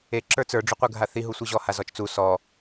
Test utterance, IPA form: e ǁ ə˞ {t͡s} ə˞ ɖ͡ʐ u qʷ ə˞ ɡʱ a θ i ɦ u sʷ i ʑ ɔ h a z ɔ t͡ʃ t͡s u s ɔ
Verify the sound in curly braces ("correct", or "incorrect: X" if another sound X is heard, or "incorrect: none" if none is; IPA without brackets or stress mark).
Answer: correct